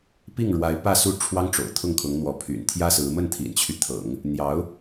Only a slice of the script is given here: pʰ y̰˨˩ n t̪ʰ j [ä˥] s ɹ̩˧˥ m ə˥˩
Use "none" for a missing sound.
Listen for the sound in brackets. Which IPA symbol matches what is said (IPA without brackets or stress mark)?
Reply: ä˥